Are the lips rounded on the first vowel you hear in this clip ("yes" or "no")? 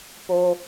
yes